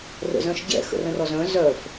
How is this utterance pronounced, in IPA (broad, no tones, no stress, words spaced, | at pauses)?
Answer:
rə̰zœ̃ʃɟɛ̰ xə̰rə̃rɔzœ̃ zœf